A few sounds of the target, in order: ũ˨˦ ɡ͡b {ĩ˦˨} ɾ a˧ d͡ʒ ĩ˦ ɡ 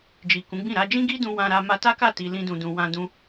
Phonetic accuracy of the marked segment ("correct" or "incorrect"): correct